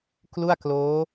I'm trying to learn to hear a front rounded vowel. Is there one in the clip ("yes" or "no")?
no